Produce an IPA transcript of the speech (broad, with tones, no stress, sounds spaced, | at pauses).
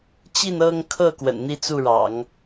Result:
t͡ɕ i˥˧ n ɤ˥˧ ŋ kʰ ɤ˥˩ k w ə̰˨˩ n n̪ i˥˧ t͡s u˥˩ ɻ ɑ̰˨˩˦ ŋ